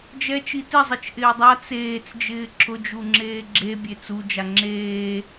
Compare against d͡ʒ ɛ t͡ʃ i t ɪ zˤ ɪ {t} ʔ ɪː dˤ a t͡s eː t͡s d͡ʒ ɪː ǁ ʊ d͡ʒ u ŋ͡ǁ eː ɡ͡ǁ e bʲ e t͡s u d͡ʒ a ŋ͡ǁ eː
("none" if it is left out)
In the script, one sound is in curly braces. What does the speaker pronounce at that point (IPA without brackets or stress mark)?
t͡ʃ